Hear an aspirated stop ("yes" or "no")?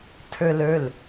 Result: yes